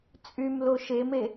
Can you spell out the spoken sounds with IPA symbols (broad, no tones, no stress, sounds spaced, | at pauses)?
t͡sʼ y m l o ʃ e m e